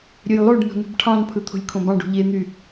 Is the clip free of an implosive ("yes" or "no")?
yes